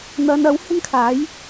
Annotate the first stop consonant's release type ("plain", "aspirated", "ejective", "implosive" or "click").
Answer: aspirated